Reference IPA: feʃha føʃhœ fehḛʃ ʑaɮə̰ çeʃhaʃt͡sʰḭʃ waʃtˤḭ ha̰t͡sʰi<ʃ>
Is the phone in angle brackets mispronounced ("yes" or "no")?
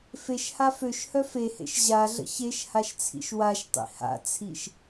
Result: no